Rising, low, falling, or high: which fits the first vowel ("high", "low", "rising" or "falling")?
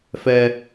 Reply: high